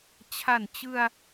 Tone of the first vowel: low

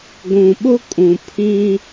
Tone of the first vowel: low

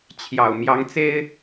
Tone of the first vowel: low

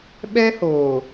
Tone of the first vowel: high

